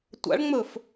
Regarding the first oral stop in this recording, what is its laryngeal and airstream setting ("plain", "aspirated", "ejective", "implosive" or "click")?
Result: plain